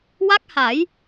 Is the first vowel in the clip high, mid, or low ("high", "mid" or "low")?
low